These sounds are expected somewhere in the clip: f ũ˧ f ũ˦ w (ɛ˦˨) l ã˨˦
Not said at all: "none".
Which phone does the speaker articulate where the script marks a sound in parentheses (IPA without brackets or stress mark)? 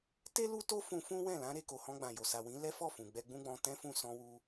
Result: ɛ̃˦˨